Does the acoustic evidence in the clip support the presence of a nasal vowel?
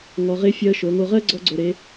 no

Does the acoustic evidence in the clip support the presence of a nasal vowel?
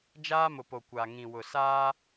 yes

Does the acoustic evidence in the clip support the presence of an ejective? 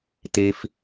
no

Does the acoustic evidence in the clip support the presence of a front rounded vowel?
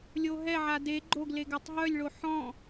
yes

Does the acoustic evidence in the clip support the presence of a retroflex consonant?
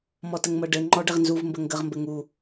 yes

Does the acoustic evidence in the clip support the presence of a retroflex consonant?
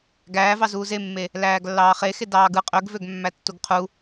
no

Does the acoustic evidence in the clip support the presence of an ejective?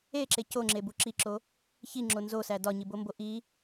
no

